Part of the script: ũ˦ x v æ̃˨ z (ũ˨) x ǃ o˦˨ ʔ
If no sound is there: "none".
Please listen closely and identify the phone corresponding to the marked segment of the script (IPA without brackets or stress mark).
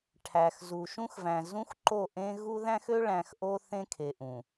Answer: ũ˦